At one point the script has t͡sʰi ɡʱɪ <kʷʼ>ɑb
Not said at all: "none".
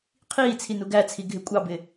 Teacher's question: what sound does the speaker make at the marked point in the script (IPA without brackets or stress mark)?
kʷʼ